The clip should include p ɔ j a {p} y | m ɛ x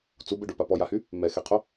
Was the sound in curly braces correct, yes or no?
no